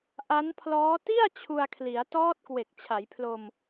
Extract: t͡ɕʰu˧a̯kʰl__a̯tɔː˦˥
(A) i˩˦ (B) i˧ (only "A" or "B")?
A